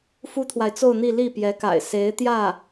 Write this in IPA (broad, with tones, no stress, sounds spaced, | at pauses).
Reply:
f u˥ t̪ʰ w a˨ ɪ̯ t͡s o˥˧ ʊ̯ n̪ i˥˧ l i˥˩ p j ɛ˧˥ k a̰˨˩ ɪ̯ s e˧˥ ɪ̯ t̪ j ä˥˩